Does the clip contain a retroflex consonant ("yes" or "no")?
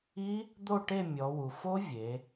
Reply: yes